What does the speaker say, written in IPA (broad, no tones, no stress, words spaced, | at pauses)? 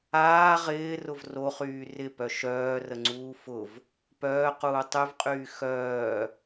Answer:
aː ʁɪːrʊv roχyː rɪpœ ʃœːrəŋ͡ǀuː fʊv | pœːquː tˤyvqʼyː xœː